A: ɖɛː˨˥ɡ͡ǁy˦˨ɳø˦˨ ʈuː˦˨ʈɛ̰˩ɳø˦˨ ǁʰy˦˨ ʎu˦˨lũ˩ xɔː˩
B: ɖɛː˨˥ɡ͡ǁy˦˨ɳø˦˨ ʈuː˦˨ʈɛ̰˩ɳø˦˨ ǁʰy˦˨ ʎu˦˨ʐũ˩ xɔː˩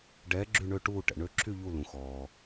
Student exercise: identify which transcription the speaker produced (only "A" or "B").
A